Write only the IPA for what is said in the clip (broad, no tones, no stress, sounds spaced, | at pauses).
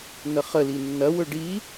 n ə χ ə l i nː ɐ w ɵ ɖ i